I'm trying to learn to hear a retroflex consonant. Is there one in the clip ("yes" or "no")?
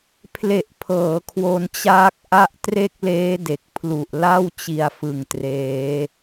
no